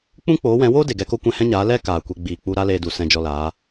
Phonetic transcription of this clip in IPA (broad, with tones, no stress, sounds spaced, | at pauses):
k͡p ũ˦ k͡p oː˨˦ w ɛ̃˨˦ w oː˦ d e˨ ɡ ɛ˧ k o˦ kʷ ɛ̃˧ h ɛ̃˦ ɲ aː˨˦ l ɛ˧ k aː˨ kʷ e˧ ɡ͡b iː˨ k͡p u˧ ɾ a˦ l eː˧ d u˨ s ɛ̃˧ d͡ʒ ɔ˧ l aː˨˦